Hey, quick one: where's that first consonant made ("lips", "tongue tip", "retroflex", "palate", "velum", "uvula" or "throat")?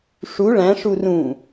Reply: retroflex